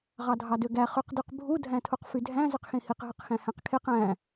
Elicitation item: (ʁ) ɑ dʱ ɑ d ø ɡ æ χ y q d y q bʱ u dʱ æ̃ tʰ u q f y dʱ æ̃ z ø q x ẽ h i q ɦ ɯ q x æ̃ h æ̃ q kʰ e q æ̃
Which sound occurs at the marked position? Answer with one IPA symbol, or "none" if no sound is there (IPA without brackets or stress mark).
ʁ